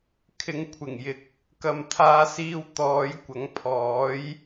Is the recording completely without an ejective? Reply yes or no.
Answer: yes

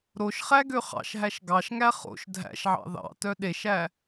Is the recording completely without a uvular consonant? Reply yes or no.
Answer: no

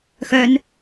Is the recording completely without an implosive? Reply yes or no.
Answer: yes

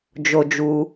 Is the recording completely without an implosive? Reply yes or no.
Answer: yes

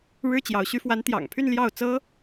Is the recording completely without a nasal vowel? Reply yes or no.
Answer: yes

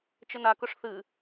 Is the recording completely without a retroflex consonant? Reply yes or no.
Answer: no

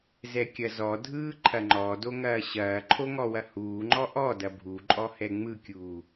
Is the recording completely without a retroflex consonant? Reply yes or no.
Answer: yes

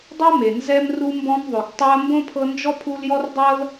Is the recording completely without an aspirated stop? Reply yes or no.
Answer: no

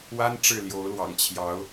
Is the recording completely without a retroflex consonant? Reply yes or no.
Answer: no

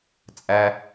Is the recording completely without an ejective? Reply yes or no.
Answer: no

